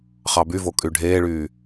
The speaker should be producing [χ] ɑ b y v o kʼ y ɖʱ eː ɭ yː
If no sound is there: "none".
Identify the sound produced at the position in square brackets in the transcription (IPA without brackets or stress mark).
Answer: χ